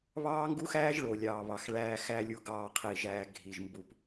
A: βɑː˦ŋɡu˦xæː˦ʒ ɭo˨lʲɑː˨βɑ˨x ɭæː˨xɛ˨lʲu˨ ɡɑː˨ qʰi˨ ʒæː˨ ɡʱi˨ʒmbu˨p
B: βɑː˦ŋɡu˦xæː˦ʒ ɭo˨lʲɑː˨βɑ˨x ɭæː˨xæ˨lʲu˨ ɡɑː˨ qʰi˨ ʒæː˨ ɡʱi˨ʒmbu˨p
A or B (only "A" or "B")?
B